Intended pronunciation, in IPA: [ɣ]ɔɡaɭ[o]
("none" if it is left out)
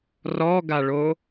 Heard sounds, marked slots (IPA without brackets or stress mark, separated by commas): r, o